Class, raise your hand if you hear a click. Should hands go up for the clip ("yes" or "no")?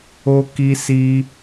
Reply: no